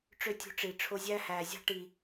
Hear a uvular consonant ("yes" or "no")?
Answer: no